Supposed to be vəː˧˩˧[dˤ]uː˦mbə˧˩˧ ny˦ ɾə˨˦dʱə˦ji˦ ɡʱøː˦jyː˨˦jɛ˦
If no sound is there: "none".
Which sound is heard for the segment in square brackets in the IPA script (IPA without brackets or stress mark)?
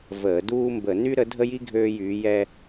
d